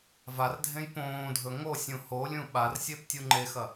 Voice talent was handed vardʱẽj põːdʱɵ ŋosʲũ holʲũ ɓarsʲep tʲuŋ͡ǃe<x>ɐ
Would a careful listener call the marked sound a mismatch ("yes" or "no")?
no